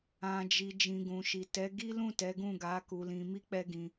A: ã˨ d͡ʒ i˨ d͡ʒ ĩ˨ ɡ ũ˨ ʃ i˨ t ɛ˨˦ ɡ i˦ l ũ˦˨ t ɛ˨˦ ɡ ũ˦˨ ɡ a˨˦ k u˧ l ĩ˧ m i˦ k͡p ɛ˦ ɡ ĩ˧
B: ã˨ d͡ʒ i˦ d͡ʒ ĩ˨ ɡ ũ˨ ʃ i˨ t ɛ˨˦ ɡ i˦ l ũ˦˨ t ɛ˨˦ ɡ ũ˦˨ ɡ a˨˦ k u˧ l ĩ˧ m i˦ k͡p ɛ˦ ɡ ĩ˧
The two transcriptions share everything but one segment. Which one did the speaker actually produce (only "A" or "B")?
A